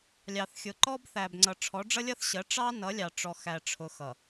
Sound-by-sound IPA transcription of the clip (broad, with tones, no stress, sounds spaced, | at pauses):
lʲ ɑ˨ θ xʲ ʊ˨ ǃ ɔ˦ b θ æ˨ b ŋ͡ǀ ʌ˨ ʈ͡ʂʰ ɔ˨˦ ɖ͡ʐ ʌ˦ lʲ ʌ˦ θ ɕ ɜ˨˦ ʈ͡ʂ ɑ˦ n ʌ˨˦ lʲ ɑ˨ ʈ͡ʂ ɔ˨ x æ˨ ʈ͡ʂʰ ʊ˨ x ʌ˨